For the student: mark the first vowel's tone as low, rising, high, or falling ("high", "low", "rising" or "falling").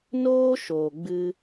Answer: high